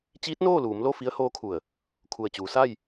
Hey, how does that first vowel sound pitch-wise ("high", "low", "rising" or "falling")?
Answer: rising